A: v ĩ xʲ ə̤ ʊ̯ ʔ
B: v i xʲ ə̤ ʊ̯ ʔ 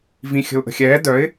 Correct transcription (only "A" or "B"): A